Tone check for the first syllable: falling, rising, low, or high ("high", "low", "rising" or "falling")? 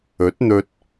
rising